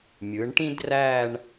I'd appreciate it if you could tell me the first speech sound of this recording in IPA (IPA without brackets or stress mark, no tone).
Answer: mʲ